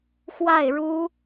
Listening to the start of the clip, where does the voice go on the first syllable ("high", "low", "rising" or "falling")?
falling